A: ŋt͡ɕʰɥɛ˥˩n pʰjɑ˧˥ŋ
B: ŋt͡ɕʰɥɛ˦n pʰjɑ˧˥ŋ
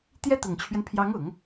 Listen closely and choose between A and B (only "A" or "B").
B